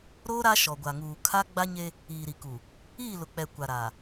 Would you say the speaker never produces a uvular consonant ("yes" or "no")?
yes